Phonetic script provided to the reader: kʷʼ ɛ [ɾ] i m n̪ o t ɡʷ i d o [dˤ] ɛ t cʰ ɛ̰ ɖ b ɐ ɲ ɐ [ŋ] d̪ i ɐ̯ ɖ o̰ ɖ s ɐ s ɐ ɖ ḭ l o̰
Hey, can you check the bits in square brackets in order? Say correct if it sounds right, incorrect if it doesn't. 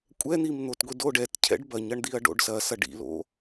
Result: incorrect, incorrect, incorrect

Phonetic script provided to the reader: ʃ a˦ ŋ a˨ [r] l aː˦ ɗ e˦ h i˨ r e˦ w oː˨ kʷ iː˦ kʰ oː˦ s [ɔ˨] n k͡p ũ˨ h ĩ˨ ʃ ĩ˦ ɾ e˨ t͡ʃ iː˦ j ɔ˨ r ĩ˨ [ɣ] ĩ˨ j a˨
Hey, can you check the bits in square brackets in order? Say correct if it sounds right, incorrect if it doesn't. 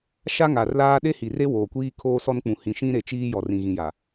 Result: correct, incorrect, correct

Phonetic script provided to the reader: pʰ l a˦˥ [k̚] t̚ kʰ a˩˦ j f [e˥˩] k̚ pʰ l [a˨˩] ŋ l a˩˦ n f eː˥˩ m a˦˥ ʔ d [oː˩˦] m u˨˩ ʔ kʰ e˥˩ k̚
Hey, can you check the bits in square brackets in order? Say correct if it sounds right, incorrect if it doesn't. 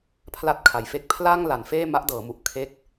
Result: incorrect, incorrect, incorrect, incorrect

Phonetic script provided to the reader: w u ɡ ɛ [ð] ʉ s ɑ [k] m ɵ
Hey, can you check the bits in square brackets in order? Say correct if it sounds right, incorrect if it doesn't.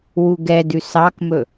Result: incorrect, correct

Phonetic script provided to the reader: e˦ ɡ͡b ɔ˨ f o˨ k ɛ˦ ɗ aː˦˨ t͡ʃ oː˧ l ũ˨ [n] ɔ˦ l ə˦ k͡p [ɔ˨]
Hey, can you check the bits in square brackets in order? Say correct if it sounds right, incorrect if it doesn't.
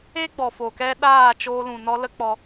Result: correct, incorrect

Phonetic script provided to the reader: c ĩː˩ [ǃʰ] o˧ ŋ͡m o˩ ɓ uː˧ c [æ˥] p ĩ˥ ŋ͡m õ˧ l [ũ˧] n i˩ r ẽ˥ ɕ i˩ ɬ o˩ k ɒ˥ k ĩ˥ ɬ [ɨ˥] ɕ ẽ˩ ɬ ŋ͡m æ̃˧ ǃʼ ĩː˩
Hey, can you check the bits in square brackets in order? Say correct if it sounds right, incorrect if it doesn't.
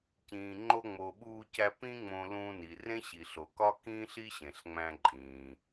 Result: incorrect, incorrect, correct, incorrect

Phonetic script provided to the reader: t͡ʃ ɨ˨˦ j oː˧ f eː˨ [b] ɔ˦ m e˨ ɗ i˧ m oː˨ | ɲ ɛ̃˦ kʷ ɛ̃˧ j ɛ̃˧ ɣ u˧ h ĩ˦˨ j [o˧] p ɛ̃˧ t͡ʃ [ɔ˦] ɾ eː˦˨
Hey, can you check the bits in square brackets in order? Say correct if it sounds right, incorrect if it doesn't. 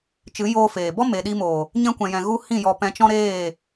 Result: correct, incorrect, incorrect

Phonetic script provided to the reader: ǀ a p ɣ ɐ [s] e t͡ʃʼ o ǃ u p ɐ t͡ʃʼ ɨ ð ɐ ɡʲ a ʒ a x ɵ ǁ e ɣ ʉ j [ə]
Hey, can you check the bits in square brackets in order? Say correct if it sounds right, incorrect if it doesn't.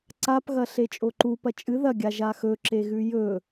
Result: incorrect, incorrect

